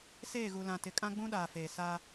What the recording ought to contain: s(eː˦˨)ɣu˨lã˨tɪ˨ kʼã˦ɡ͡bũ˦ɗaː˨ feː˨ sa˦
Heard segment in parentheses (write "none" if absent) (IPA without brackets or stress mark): eː˦˨